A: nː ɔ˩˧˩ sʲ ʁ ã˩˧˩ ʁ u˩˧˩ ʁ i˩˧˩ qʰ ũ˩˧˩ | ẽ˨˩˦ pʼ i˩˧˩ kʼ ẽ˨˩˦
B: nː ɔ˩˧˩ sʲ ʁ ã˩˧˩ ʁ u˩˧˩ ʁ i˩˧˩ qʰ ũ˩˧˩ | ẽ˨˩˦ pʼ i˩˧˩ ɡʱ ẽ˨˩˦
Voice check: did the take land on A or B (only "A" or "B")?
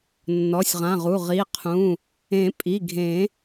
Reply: B